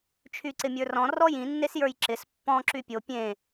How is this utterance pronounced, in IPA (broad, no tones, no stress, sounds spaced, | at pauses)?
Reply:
t͡ʃʰ y ǀ ɪ mʲ ə˞ r ɔ̃ r ɔ j ĩ nː e s j ə˞ j ǁ ɪ s pː ɔ̃ ǁ y pʲ o pʲ ẽ